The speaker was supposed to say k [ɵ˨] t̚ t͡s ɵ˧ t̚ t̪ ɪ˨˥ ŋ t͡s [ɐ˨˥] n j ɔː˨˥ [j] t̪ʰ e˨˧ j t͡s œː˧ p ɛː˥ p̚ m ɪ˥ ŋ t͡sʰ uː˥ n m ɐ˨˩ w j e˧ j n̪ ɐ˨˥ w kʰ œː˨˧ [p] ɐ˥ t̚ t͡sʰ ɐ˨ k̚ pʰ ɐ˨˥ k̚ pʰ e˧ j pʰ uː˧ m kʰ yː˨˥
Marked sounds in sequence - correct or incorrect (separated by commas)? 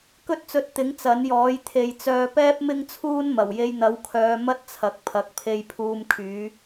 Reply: incorrect, correct, correct, incorrect